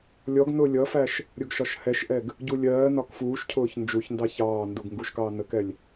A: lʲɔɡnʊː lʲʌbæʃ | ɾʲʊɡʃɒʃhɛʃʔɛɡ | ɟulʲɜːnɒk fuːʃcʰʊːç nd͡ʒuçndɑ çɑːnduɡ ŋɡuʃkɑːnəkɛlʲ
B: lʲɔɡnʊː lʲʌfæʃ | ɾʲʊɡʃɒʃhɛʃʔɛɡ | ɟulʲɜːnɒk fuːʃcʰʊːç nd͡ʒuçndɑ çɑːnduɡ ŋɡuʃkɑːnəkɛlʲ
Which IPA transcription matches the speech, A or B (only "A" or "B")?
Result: B